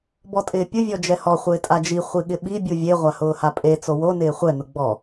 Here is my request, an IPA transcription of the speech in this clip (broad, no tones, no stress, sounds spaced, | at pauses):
b ɔ tʼ ɪː pʲ ʊ vʲ ɔ d͡ʒ ɛ h ɔ χʷ ɪː tʼ a d͡ʒ i χʷ i ɠ ɪ ɓ i bʲ u vʲ e ʁʷ a h ʊː h a pʼ e t͡s o w o n ɪː χʷ ɛ n ʊ ɡ͡b ɔ